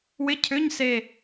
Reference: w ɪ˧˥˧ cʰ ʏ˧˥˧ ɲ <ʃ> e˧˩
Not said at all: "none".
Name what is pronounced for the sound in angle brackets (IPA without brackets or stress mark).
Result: s